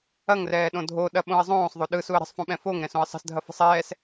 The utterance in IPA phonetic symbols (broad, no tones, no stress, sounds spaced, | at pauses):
ɐ ŋ r ɛː ɗ õ dʱ o ɗ ɐ ɓ õ ə̯ zˤ õː sˤ ðˤ o ɗ ɯ s u ə̯ ɾ ə̤ sˤ f õ ɓ ɛ̃ f o ŋ ɾ ɛ̃ s õ ə̯ sˤ ə̤ s dʱ ɐ f ə̤ sˤ ɛː s